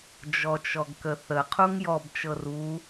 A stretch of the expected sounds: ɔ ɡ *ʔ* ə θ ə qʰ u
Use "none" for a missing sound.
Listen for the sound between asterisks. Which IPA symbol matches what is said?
k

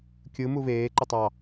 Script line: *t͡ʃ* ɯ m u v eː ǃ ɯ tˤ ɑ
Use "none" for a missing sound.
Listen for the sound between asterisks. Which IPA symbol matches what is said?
kʲ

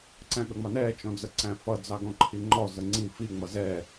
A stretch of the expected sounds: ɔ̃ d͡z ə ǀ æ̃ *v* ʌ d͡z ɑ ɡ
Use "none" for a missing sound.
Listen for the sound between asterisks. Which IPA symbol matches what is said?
f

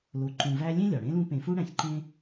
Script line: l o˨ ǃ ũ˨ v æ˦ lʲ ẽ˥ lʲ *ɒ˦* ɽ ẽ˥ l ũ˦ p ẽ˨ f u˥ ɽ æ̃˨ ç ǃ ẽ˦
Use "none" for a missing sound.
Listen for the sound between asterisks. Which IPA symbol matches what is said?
ɒ˩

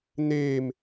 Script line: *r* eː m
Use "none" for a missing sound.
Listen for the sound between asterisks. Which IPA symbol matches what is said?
n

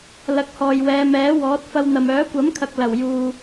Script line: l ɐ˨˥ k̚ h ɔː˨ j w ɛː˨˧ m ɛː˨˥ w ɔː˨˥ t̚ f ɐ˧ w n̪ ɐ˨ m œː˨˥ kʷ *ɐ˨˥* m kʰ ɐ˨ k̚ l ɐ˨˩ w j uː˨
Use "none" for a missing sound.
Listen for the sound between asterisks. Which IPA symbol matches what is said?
ɐ˨˥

